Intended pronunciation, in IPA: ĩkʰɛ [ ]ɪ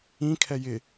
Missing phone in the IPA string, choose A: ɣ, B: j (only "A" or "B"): B